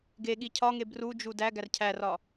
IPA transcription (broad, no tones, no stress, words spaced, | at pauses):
ɡeɠi cʰɒŋe brud͡ʒu dæ ɡærcʰærɒ